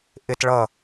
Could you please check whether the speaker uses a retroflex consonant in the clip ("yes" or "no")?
yes